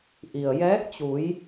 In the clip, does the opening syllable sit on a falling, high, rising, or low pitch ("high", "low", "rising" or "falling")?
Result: low